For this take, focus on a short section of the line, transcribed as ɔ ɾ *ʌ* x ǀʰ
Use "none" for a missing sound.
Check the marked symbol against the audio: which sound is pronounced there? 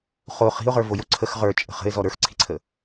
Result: ə˞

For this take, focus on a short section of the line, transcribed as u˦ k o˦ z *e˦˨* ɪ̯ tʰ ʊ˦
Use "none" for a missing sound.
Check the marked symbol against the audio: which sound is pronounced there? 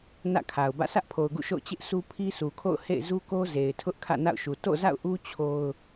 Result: e˨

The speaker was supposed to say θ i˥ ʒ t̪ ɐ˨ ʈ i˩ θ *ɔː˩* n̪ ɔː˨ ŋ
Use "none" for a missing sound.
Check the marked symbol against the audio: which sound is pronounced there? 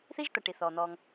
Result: ɔː˩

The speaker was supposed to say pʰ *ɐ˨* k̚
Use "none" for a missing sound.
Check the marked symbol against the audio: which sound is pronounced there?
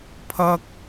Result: ɐ˥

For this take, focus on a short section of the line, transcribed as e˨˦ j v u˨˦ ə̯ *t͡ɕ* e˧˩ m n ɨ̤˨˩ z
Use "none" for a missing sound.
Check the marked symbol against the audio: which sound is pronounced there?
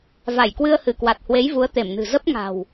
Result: t̪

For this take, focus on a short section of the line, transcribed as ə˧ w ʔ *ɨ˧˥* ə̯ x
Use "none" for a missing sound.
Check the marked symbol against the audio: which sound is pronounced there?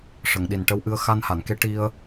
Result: ɨ˧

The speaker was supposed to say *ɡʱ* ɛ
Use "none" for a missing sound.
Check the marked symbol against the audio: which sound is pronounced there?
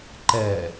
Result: ǃ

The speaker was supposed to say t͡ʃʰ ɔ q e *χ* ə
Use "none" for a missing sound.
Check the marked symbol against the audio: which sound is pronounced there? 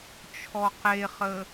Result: χ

